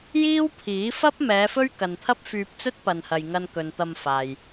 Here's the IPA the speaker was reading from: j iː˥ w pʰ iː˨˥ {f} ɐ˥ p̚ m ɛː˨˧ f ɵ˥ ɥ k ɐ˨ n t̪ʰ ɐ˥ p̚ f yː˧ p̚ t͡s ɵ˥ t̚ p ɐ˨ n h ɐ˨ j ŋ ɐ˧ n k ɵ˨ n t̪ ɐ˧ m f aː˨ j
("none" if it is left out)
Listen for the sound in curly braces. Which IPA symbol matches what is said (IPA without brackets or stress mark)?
f